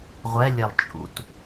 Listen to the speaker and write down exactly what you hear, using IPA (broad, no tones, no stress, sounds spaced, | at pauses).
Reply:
ʁʷ ɛ lʲ ɛ lˠ t͡ʃʼ ṵ t